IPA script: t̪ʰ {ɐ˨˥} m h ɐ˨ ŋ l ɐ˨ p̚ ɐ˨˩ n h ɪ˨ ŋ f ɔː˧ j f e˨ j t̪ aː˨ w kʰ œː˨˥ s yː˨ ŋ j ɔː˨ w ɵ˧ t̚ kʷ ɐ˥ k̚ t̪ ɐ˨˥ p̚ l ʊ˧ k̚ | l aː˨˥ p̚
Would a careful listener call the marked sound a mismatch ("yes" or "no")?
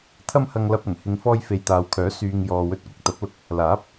yes